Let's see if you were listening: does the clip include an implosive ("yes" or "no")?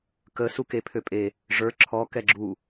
no